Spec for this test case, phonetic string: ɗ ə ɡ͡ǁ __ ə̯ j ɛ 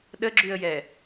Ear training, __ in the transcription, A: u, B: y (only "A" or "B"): B